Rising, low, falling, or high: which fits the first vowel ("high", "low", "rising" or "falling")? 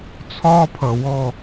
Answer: high